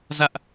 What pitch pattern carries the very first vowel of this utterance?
high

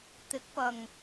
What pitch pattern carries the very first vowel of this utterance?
rising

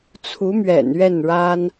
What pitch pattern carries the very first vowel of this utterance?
rising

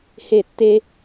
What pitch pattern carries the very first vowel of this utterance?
falling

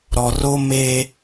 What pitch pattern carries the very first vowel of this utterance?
low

